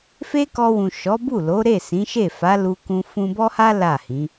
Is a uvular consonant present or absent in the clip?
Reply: absent